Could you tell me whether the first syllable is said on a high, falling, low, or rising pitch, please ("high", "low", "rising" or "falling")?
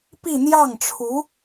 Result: falling